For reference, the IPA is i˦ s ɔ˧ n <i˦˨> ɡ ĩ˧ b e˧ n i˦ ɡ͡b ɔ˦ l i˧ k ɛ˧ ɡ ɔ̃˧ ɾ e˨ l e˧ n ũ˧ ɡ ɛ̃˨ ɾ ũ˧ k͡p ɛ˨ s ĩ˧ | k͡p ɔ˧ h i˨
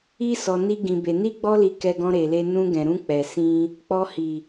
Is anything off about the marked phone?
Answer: yes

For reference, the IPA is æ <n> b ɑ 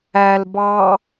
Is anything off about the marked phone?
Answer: yes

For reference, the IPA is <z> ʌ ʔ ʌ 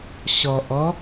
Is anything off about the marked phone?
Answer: yes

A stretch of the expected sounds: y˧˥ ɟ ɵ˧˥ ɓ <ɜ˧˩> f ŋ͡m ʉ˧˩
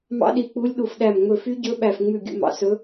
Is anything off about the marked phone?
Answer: yes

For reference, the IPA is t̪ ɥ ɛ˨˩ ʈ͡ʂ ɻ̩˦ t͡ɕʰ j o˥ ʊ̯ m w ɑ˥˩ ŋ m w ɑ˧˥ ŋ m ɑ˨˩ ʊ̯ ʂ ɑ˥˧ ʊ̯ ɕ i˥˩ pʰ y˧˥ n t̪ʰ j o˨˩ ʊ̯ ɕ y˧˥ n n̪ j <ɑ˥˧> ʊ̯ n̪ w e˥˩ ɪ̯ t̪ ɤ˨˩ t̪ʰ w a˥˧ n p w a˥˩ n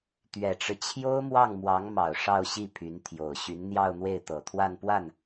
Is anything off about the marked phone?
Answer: no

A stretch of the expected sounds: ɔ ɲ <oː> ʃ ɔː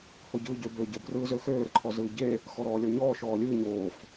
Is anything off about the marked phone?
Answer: yes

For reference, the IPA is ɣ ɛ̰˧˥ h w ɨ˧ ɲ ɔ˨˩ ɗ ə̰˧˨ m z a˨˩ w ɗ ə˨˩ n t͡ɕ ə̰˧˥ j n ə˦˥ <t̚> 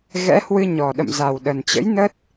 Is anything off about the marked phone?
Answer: no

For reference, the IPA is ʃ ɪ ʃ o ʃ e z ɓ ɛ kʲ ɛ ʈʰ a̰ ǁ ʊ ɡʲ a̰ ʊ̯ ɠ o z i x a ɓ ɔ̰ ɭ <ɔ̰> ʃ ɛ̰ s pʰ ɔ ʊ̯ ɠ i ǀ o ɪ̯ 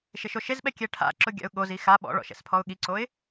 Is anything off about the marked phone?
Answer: no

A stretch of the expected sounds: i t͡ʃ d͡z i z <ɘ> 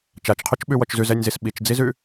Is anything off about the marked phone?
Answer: yes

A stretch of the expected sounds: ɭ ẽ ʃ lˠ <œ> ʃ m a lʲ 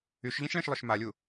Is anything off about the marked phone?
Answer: no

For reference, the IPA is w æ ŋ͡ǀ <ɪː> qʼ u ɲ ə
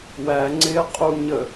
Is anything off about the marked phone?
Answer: no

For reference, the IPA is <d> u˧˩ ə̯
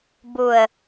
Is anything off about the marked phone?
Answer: yes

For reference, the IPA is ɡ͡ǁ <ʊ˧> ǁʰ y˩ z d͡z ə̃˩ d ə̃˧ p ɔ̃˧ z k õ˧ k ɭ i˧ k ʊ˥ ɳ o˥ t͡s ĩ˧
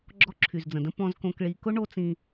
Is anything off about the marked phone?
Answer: yes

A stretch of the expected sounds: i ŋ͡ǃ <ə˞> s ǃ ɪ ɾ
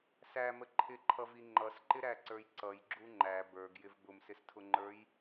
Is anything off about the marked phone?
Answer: yes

